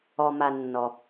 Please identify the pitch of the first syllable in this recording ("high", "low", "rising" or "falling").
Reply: low